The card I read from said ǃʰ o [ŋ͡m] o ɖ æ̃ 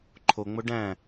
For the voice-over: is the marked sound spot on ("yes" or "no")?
yes